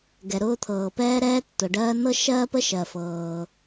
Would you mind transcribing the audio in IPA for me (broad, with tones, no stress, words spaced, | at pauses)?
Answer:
ɡɛ˩ɾʊː˥t̪ʰɤː˩ pɛː˥ɾɛː˥tːʊ˩ ɖɜː˥ nɤ˥ʃɜː˥pə˥ ʃɜ˩fɤː˩